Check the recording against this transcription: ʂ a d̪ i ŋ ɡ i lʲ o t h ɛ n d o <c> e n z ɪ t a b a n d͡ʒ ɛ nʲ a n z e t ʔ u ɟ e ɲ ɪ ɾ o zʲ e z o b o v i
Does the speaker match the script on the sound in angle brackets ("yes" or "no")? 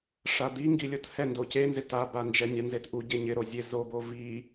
yes